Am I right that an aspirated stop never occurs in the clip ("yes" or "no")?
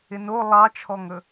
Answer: no